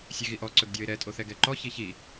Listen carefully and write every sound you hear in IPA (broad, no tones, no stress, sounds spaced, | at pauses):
sʲ e ɣ i ʔ ɔ ǀ ɵ ɡ dʲ ɔ ɪ̯ ɾ ɛ tʼ o θ ɛ ɡ ɛ ǃ ɔ ç i ç i